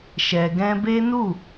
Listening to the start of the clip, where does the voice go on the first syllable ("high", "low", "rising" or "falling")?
low